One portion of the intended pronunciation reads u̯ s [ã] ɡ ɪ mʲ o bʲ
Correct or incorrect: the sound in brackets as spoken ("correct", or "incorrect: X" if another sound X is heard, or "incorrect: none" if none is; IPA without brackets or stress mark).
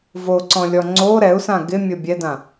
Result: correct